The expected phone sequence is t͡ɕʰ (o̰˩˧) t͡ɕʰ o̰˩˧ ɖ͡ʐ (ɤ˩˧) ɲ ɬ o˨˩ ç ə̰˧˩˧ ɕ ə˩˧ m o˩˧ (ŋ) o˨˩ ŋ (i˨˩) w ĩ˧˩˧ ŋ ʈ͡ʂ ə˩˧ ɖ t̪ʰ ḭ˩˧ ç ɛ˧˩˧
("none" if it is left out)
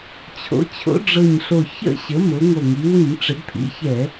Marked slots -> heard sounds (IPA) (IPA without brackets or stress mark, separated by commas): o̰˩˧, ɤ˨˩, ŋ, i˩˧